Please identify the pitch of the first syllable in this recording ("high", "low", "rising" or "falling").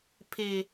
falling